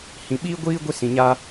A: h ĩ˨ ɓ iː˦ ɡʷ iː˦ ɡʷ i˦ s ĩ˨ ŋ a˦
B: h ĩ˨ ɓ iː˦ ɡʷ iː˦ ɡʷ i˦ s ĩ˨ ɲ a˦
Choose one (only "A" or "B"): B